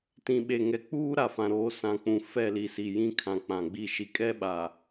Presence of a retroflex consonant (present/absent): absent